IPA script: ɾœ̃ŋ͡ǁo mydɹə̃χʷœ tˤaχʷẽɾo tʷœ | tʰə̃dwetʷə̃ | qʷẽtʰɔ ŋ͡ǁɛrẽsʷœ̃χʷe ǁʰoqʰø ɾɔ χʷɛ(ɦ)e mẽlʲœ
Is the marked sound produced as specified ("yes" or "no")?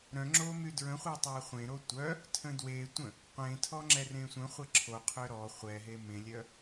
yes